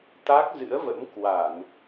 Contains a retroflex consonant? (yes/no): no